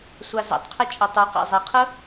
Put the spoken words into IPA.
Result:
sʷ a z ɛ̰ tˤ qʰ ɛ t͡ʃʼ ə tˤ u q a̰ zˤ e qʰ ə

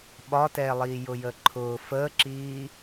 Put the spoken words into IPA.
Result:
ɓ ɒ t ɛː lˠ iː j ʊ j əː ǃʰ ʊː f əː ǁ iː

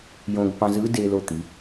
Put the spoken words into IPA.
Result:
j õ˧ ɡ p ɑ̃˧ z ɯ˧˥ d e˧ l o˧ t̪ i˩˧

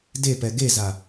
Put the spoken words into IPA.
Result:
d e p ɛ ɡ e z a

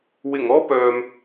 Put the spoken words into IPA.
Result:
w ɪ˨˩ ŋ ɔː˥ p œː˨ m

